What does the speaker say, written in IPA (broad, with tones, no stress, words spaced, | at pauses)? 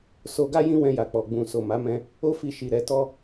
so˧ɡa˦ jĩ˦ wɛ̃˧ja˨k͡pɔ˨ ɡ͡bũ˨ so˨ma˨˦ mɛ̃˧ | o˦fi˧ ʃi˨ ɾɛ˨˦ tɔ˦